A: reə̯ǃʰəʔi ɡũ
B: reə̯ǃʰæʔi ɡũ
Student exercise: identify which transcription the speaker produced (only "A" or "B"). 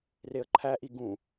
B